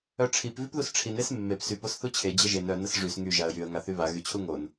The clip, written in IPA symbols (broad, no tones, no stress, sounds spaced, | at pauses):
œ ʈ͡ʂʰ i p v y p ð u s ʈ͡ʂʰ i n e s mː e p s y p o s θ u t͡ɕʰ e d͡ʑ ə ʒ e n œ n ə s ʐ y s ŋ y ʒ a ə̯ j y ə̯ ŋ a θ y β a ɣ y t͡ɕʰ u ŋ o n